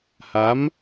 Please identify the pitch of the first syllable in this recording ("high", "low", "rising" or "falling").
rising